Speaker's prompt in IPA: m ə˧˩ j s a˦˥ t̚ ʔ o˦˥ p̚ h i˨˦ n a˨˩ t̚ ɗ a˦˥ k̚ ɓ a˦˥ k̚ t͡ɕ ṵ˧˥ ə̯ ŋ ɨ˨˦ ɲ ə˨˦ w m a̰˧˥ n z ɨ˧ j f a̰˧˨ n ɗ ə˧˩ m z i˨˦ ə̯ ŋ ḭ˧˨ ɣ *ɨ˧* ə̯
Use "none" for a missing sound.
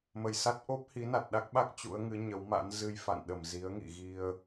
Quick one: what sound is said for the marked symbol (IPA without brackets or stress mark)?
i˧